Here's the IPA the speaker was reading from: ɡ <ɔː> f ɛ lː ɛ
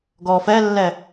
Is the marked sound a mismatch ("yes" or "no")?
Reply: no